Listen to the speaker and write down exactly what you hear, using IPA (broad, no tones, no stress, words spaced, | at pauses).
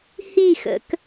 hixə̰k